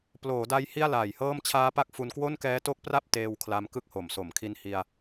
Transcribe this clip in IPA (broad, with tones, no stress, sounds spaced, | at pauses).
p l oː˩˦ d a˦˥ j h i˥˩ a̯ l aː˨˩ j h ɤː˥˩ m t͡ɕʰ aː˦˥ p a˦˥ k̚ f u˧ n k w o˥˩ n k ɛː˦˥ t o˦˥ k̚ p r a˥˩ p̚ t eː˧ w kʰ l a˧ m k ɯ˦˥ k̚ h o˩˦ m s o˩˦ m kʰ i˧ n h i˧ a̯